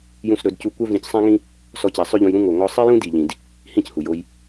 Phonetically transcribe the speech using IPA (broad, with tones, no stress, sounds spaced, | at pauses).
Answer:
j ũ˦ s ɾ ɵ˨˦ d c u˦ kʷ œ˦ v ĩ˧ c sˤ æ̃˦ ŋ ĩ˦ | s ɔ˦ c æ˧ sˤ ø˦ ʎ ũ˧ j ɾ ũ˦ ŋ o˨ ŋ ɔ˦ sˤ i˦ j ũ˦ d i˨ ʎ ĩ˨ d | h ĩ˦˨ c h u˨ j o˧ j